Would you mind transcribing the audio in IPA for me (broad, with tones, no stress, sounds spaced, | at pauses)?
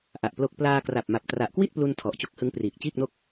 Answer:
ʔ a˨˩ ʔ p l o˦˥ k̚ p l aː˧ k r a˨˩ p̚ m a˨˩ p̚ t r a˨˩ ʔ k w i˥˩ t̚ p l u˧ n tʰ ɔ˨˩ ʔ t͡ɕ o˦˥ k̚ h ɯ˦˥ ŋ p r iː˨˩ k̚ t͡ɕ iː˥˩ k̚ n o˥˩ k̚